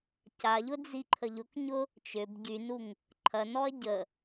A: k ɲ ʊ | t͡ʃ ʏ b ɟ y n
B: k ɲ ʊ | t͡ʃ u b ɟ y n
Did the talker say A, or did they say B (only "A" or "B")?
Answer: A